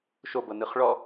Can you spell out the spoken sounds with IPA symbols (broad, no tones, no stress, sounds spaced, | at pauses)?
ʃ o b ɤ n ɯ χ ɭ ɔ